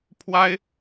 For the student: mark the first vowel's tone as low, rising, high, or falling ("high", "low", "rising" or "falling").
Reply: high